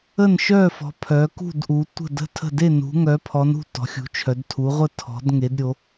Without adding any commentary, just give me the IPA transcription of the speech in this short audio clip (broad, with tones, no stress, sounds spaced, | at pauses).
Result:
ə˥˨ n ʃ œ˥˨ f ɔ̤˨˦ pʰ œ˨˦ k ṳ˥˨ d ʔ u˨˦ tʷ ə̤˥˨ d ə̤˥˨ tʰ ə̤˥˨ d e˥˨ n ṳ˨˦ ŋ œ˨˦ pʰ ɔ˨˦ n ṳ˥˨ t ɔ̤˨˦ xʲ ṳ˨˦ t͡ʃʰ œ˨˦ d tʰ u˨˦ ʁʷ ə˥˨ tʰ ɔ̤˨˦ d ŋ e˨˦ d ɾʲ o˨˦